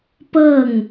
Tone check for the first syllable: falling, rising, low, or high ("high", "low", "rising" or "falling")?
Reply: falling